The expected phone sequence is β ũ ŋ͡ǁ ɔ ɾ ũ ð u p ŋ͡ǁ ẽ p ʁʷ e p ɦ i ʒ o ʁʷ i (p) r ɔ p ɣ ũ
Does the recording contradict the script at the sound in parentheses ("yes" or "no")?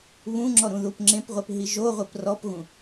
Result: no